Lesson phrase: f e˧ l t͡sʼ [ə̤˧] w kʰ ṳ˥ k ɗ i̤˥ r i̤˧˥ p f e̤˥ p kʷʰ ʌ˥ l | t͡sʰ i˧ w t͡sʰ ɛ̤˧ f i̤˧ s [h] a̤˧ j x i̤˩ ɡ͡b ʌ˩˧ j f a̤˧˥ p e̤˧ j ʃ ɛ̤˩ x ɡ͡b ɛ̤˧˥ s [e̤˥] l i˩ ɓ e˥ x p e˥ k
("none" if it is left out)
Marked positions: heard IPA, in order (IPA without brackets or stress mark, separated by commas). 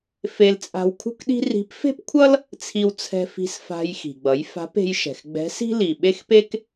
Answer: a̤˧, f, i̤˥